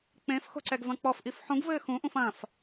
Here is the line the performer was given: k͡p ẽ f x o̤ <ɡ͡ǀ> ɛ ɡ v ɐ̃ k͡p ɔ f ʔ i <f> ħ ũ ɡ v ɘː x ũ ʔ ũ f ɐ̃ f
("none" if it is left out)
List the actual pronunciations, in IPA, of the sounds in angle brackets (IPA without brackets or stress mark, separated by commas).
ǀ, f